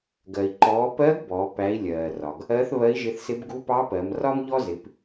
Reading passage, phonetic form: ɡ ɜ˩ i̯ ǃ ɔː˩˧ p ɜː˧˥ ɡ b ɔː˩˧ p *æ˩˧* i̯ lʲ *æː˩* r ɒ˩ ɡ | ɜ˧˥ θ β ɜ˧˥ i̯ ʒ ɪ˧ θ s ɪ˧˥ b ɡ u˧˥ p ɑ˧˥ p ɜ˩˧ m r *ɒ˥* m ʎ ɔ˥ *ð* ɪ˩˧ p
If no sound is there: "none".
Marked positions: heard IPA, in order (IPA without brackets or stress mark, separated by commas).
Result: æ˩˧, ɜː˩, ɒ˥, z